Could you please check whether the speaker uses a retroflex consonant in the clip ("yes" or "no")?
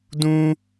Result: no